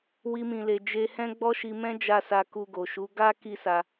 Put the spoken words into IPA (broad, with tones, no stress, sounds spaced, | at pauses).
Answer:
w i˦ m ĩ˧ l e˧ d͡ʒ e˧ h ɛ̃˦ ɡ͡b ɔ˦ ʃ i˧ m ɛ̃˦ d͡ʒ a˧ s a˧ k u˧ ɡ o˨ ʃ u˨˦ ɡ a˦ k i˦ s a˧